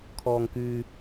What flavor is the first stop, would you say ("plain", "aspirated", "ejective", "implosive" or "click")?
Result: aspirated